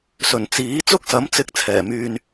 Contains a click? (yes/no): no